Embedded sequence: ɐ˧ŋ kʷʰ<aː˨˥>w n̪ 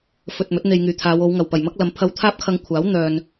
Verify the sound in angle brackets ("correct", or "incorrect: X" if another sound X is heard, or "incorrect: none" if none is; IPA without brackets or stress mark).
correct